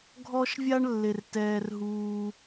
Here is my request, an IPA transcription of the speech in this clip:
ɡʱɔ˧ʃvʲa˧ɳlːe˩r tɛː˩rɦuː˩

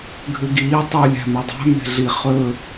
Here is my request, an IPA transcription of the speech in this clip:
ɡʱʉɡiː tˤu lʲæ̤mʉdˤæ̤ me̤ɮi χɵ

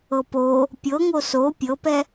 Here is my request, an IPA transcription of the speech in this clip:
ɤpo | pʲɤŋo so pʲɤpɛ

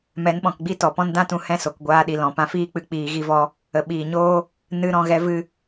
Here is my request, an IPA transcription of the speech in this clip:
mɛ˨˦nɓɔ̃˨kɡ͡bi˦ tɔ˨pɔ̃˦n dã˦tũ˧hɛ̃˦˨ so˨kɡʷaː˧ɗi˨ lɔ̃˨ pã˧fiː˦k͡pɨ˧ k͡piː˧ɣi˦vɔ˦ | ə˨ɓiː˨ɲoː˦ | nɨ˧ ɾɔ̃˦˨ɣɛ˦ vɨ˧

